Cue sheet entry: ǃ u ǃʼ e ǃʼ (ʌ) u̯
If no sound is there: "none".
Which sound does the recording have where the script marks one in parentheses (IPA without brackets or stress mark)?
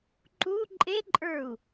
ə˞